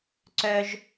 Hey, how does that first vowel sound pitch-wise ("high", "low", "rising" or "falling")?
high